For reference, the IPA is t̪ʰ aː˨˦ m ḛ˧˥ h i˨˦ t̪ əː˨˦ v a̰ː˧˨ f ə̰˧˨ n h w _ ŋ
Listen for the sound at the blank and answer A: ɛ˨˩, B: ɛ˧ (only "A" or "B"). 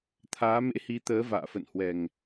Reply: A